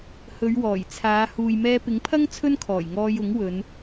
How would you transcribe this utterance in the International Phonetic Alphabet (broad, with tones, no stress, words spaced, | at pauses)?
hɵ˨˧ɥwɔː˨˩jt͡sʰaː˨˧ huː˨jmɛː˧pɪ˨˥ŋpʰɐ˥ŋ t͡sʰɵ˥nkʰɔː˨˩j ŋɔː˧j ʊ˨˥ŋwɵ˨˧n